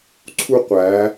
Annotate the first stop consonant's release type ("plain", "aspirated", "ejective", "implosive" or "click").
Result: click